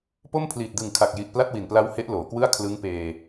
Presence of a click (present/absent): absent